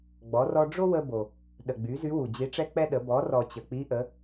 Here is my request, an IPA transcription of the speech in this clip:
ɡ͡b ɔ˩˧ r ɔ˧ ɖ͡ʐ o˥ w ə˧ b o˩ | ɗ ə˩ ɡ͡b y˩˧ z y˧˥ w u˩ d͡ʑ i˧˥ ʈ͡ʂ ɛ˥ k͡p ɛ˥ ɗ ə˩˧ b ɔ˩˧ r ɔ˩ t͡ɕ ə˩ k͡p i˧˥ ʔ ə˩˧

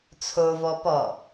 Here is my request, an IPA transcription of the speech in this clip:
t͡sʰ o v ɔ p ɔ

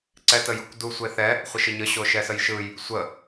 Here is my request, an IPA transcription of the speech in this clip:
ǀ ɛ t ə j ɯ kʷ d u sʷ e θ ɛ | χʷ ə ʃ ə ɲ ə ɕ o ʃ ɛ s ə j ʃ ɯ j | sʷ ə

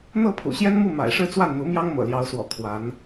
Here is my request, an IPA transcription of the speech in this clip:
n̪ ɤ˥˩ pʰ ṵ˨˩ ɕ j ɛ˥ n m u˥˩ m a̰˨˩ ɪ̯ ʂ ɻ̩˥˧ t͡s w a˥˩ n n̪ u˧˥ m j ɑ˥ ŋ m ɤ̰˨˩ l j ɑ˧˥ ʊ̯ s w ɔ̰˨˩ kʰ w a˧˥ n

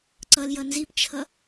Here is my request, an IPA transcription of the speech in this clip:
ǀ ʌ l j ʌ n z i p t͡ʃʰ ʌ

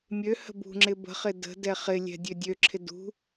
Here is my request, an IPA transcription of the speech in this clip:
mʲ ø h ə̤ b ṳ ŋ͡ǁ ɪ b ə̤ χ ɪ d ə̤ d ɛ χ ɪ lʲ ɛ̤ dʲ ø dʲ ø ǁʰ ɪ d ṳ

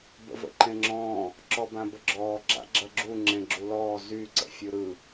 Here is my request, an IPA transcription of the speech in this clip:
b ə̰ v ə̰ ǃ ẽ ŋ͡ǁ ɔ̃ː | ǁ ɔ b ã b ə ɡ͡ǁ ɔː ɡ͡ǁ a̰ ɡ͡ǁ ɐ ɡ͡ǁ u ŋ͡ǁ ẽ ɡ͡ǁ u l ɔː z y ǀ ə̰ fʲ ɯ ɾ ɯ

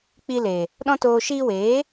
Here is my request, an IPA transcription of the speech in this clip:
k͡p i˧ l e˨ | ɗ ɔ̃˦ t oː˧ ʃ iː˧ w eː˨˦

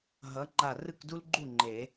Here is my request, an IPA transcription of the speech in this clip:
ɦ ʌ˨˥ ŋ͡ǃ a˧˩ r ɯ˥˩ k d u˥ l ɡ͡ǃ u˥˩ ŋ͡ǃ e˨˩˦

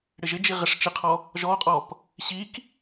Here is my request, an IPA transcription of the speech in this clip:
ɽ ɪ ʒ ɪ d͡ʒ i ʁ ɪ ʂ t͡ʃ ɪ qʰ ɔ | ʒ ɔ qʼ ɔ p | ɕ i k

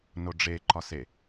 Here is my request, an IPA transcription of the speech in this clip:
n o ɖ͡ʐ e ǃ ɒ s e

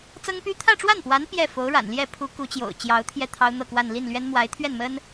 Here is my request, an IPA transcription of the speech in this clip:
t͡s ɤ˥ ŋ p y˥ t̪ʰ ä˥˧ ʈ͡ʂ w a˥˩ n p w a˧˥ n p j ɛ˥˩ f o˧˥ ʊ̯ ɻ a̰˨˩ n l j ɛ˥˩ pʰ u˧˥ k u˧˥ t͡ɕ j o̰˨˩ ʊ̯ t͡ɕ j ɑ˧˥ ʊ̯ t̪ʰ j ɛ˥˩ t̪ʰ ɑ˥ ʊ̯ n̪ ɤ˥˧ k w a˥˧ n l i˥˩ n l ɥ ɛ˥ n m w a˧˥ ɪ̯ t̪ʰ ɥ ɛ˥˩ n m ə˥ n

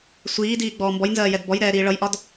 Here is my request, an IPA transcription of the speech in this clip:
sʷ iː d iː ɡ͡b ɔː m b ɔ j n z ɜː j ɛ d b ɔ j ɾ ɛː ɾ iː ɭ ʌ j ʔ ɒ d

